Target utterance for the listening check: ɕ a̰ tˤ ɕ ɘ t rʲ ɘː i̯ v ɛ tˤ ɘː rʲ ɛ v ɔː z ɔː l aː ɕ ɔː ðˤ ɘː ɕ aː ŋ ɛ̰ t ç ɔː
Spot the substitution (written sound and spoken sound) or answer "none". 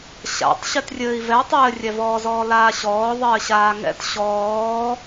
ç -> ɕ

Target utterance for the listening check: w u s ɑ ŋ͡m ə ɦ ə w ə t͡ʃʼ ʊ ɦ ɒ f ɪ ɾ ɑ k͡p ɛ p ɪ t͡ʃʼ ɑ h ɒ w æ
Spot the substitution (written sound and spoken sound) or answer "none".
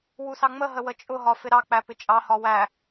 ɛ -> æ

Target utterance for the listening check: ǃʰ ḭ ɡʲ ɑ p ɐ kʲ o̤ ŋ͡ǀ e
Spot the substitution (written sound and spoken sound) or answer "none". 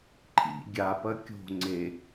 ɑ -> a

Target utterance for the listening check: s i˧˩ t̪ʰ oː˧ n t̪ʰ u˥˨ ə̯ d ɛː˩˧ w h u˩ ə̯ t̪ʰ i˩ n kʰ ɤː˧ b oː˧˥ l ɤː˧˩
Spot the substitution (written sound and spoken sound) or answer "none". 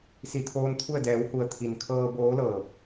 none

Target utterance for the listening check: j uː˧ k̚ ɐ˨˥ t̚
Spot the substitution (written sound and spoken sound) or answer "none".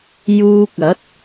none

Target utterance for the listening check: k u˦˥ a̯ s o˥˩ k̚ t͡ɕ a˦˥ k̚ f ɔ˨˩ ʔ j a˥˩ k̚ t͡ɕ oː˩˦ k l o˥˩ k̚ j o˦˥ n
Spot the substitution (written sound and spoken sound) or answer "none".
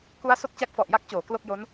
none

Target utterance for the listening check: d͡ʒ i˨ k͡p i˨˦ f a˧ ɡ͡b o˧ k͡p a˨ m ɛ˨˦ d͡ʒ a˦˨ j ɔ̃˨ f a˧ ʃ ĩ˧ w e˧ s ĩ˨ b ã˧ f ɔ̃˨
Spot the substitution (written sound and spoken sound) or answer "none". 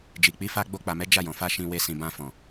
none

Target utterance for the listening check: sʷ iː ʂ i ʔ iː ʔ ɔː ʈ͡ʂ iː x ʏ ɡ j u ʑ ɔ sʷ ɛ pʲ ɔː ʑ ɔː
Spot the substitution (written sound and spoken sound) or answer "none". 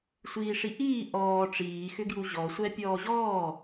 none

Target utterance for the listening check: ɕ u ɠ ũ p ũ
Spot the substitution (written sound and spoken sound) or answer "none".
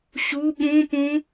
none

